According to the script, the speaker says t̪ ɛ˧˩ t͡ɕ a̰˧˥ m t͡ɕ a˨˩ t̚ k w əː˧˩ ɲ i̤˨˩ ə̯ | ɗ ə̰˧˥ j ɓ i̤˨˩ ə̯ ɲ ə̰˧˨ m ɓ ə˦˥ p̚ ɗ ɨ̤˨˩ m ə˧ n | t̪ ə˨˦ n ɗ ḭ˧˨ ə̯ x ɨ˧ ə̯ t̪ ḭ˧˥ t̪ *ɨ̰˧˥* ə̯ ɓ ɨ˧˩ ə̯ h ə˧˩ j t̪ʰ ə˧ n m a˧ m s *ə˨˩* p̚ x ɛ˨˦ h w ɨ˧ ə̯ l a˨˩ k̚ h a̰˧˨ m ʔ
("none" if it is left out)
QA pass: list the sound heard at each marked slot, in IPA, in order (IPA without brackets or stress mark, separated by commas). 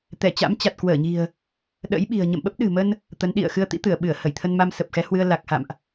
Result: ɨ˧˩, ə˨˩